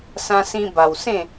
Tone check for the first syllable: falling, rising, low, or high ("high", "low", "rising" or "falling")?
high